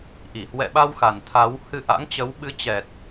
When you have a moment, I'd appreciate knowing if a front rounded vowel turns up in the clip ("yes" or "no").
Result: no